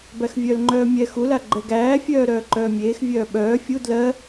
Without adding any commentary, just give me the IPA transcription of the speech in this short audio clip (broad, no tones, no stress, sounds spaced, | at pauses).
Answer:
b æ x vʲ œ l ŋ͡ǃ œː mʲ ɛ x u l a ɡ͡ǃ ɛ ɡ æː fʲ œː ɾ œː ǃ œː mʲ eː x vʲ œː ɓ œː fʲ u d l ɜ